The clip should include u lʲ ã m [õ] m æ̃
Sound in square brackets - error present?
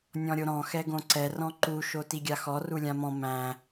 yes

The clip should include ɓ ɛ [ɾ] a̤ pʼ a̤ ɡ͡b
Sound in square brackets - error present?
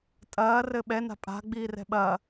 yes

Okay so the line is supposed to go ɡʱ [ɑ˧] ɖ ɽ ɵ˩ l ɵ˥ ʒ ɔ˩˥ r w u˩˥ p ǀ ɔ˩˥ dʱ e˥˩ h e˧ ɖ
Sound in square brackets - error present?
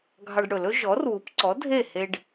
no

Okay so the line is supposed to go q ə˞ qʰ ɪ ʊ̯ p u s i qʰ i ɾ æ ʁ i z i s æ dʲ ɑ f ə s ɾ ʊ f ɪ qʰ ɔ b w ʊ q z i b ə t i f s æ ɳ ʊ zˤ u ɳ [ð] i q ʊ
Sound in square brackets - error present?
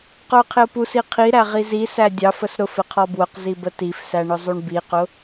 yes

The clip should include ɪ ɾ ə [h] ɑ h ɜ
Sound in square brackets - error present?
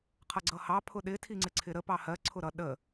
yes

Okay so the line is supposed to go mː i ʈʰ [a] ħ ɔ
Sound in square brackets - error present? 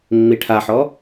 no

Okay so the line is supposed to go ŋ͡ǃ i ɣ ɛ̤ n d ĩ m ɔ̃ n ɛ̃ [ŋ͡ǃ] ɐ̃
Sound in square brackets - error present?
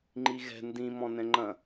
no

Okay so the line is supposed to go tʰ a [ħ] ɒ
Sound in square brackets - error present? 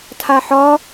no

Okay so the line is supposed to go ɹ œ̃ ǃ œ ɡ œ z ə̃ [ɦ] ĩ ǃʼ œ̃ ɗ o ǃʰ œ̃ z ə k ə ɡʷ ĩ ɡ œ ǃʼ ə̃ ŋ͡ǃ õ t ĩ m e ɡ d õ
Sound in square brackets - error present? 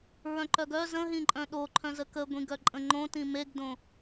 no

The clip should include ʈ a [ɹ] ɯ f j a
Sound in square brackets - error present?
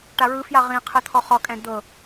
no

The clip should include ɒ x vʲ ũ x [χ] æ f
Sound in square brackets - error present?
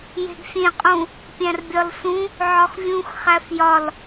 no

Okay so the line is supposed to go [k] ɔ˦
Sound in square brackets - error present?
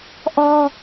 yes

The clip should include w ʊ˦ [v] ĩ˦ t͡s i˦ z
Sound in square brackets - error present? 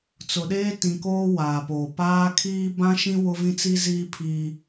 no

